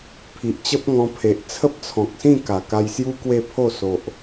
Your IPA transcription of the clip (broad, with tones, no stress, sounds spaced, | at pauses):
pʰ i˨ ʔ t͡ɕ ə˦ p̚ ŋ ɔ̃˧ pʰ e˨ ʔ t͡sʰ ə˦ p̚ t͡sʰ ɔ̃˨ k̚ s ĩ˥˧ k a˨˩ k a˧ j s j u˦ k w e˥˧ pʰ o˥˧ s o˨ ʔ